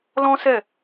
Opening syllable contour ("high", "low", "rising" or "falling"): high